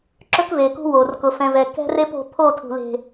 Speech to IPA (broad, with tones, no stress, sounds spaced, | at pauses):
ǁ ɵ˦ k v e˨ k ṳ˦ w o˨ r k ʊ˨ f ɛ̃˨ v ɛ˨ k ɛ̤˦ r e˦ p o̤˦ pʰ o˦˨ tʰ ṳ˨ l e̤˨